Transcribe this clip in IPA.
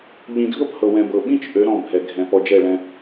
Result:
ʎĩ˨dʱɤ˦phɤ˨ wɛ̃˨bɤ˨ɓĩ˦t͡ʃ ʔø˨˦ɾɔ̃˦˨bʱɛ˨ɡʱɛ̃˨ pɔ˨d͡ʒɛ˦˨ɭɛ̃˦

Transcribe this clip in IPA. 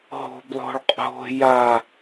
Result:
ɦo̤b lˠo̤ɭqʼo̤ ja

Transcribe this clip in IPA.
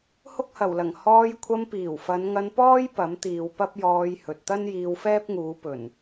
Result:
hʊ˥k̚hɐ˨˩wlɐ˨˩ŋ hɔː˧j kʷʰɐ˧mpiː˨˩wfɐ˨˧n ŋɐ˧npɔː˥j pɐ˨˥mt̪iː˨wpɐ˥p̚ jɔː˧j hɵ˨t̚ t̪ɐ˥njiː˧wfɛː˥p̚ŋuː˨˧ pɵ˨˩n

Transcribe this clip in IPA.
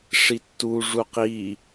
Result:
ʂitːu ʐuqi

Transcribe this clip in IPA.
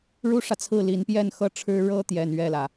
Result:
ɻu˥ʂä˨t͡sʰɹ̩˥˩ li˧˥npjɛ˥˩nxɤ˥ʈ͡ʂʰɻ̩˥ ɻɤ˥ t̪jɛ˥˧nɥɛ˥˩lä˩

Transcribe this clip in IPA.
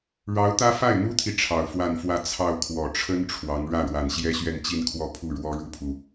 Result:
ɻɑ˧˥ʊ̯t̪ä˥ fa˥˩ɪ̯n̪u˥t̪ʰi˨ ʈ͡ʂʰɑ˨˩ʊ̯fwa˥˧nfwä˥˧ t͡sʰɑ˥˩ʊ̯kʰwɔ˨˩ ʈ͡ʂʰə˥n ʈ͡ʂʰwɑ˧˥ŋ ɻä˥˩ ɻwa˨˩nɕjɛ˥ɕɥɛ˥˧n t͡ɕi˥˧nkʰwɔ˥˧ pʰu˥˩ ɻwɔ˥ɻu˥pʰu˨

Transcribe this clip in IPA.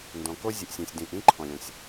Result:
ndɔ̃˩ko˥ zʲɘ˩ʔsʲɔ̃˩sʲ dĩː˩ʔĩː˥ǃʰɔ̃˩lʲɔ̃˩sʲ

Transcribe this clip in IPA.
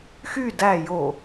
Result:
xy dæ jo

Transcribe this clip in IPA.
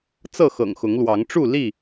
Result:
t͡sɤ˥˨xɤ̰˨˩ŋxʊ˨˦ŋlwɑ˨˦ŋ ʈ͡ʂu˥˨ li˥˨

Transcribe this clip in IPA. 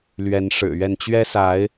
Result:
lɥɛ˨˦nʂɻ̩˨˩ɥɛ˥˨n t͡ɕɥɛ˦sa˨˦ɪ̯

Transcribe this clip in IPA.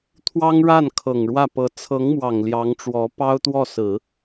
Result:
t̪ʰwɑ˥ŋɻa˥˩n kʰɤ˨˩ŋɻwä˥˩pɤ˧˥ t͡sʰɤ˧˥ŋmwɑ˨˩ŋ ljɑ˧˥ŋʈ͡ʂwɔ˧˥ pɑ˥ʊ̯t̪wɔ˥˩ sɹ̩˨˩˦

